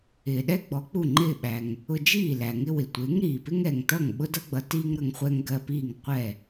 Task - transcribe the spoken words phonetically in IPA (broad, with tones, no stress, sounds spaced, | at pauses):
ɪː˩ ɗ ɛ˥ ɡ͡b ɔ˩˥ k͡p u˥˩ ŋ͡ǃ ɪː˥˩ ɓ æ˩ ŋ | ʊ˧ d͡ʒ iː˥˩ l æ˩ ŋ ɪ˥ w ɪ˩ tʷ ɪː˩˥ ŋ ɾ iː˩ p ɪ˥ ŋ ɛ˩ ŋ t ʌ˥˩ ŋ ɓ ʊ˥ d ʌ˥ ɡ͡b ʌ˩˥ t iː˥ ŋ ɾ ʌ˧ ŋ χʷ ɛ˥ ŋ ɡ ɜ˧ p iː˥˩ ŋ qʷ ɛ˥˩